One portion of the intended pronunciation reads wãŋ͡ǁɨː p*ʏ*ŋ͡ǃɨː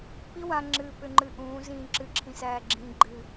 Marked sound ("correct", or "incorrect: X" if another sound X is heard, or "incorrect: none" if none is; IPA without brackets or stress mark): correct